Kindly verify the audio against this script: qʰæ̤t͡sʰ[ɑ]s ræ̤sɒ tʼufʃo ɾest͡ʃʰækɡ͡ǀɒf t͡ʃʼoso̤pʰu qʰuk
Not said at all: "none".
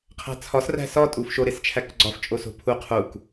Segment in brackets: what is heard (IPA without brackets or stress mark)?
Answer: ɒ